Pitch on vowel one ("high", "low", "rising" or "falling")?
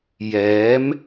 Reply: rising